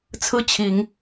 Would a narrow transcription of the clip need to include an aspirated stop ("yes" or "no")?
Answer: yes